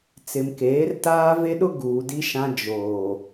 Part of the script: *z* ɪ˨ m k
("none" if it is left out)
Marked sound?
t͡s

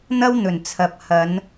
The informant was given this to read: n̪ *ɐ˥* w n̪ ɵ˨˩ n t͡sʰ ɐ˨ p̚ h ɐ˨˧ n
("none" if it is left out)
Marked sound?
ɐ˥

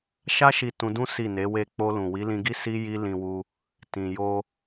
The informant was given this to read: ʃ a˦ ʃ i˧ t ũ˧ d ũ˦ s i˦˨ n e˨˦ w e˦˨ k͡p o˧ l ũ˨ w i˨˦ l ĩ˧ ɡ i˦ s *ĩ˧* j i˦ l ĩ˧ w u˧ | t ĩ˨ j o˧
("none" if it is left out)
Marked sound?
i˧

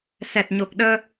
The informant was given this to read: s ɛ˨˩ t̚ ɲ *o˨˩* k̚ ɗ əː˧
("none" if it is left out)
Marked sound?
o˨˩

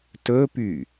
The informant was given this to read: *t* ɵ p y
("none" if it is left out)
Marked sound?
t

